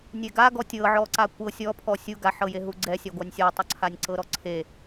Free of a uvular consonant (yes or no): yes